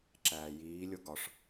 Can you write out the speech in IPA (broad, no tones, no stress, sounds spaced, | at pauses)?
ǁ æː j iː lʲ o ɡ ɒ ʂ